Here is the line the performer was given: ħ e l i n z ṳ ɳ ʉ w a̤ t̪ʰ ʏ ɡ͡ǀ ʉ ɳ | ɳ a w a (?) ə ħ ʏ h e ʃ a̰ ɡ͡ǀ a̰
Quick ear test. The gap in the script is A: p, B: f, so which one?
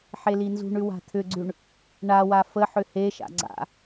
B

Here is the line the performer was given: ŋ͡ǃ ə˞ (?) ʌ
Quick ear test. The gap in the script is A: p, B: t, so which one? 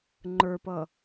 A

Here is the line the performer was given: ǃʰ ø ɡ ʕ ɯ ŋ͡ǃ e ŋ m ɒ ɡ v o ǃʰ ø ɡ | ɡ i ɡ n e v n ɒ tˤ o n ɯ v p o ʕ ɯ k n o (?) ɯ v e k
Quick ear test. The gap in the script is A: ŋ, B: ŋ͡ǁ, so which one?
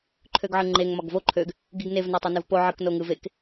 A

